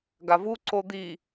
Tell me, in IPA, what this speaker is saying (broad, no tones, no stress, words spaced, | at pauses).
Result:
ɡavu ǀod̪i